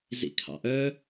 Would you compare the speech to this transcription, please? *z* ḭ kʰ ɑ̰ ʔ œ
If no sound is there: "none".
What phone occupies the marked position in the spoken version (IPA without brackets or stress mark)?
z